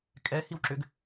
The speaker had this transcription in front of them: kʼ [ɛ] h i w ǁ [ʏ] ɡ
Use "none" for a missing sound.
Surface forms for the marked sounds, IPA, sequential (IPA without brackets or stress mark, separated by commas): ɛ, ʏ